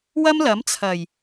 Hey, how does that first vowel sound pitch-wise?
high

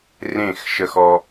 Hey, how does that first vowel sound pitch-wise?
falling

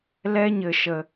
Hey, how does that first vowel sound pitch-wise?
high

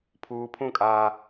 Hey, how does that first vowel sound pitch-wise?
high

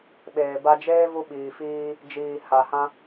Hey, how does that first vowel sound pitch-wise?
low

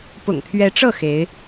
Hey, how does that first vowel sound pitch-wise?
low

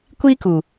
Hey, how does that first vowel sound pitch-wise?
high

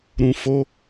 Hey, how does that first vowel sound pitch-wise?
low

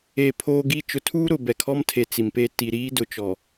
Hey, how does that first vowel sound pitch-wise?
low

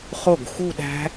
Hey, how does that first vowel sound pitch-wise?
falling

